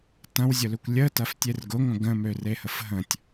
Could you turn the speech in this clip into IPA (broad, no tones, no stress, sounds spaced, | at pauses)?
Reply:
t ɐ̃ w zʲ ʊ l ø kʷ lʲ ə t ɐ f tʲ e r ɡ ʊ ŋʷ ə̃ ɡ ə̃ m ø r e h ə f ɦ ə̃ tʲ